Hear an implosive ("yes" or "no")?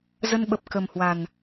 yes